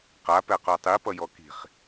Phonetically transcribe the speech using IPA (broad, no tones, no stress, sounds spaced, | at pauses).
q a p ɛ q o tˤ i p ʌ j ɔ k i̤ χ